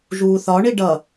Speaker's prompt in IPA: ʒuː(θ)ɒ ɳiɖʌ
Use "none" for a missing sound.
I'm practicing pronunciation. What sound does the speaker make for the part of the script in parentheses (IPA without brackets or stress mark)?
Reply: θ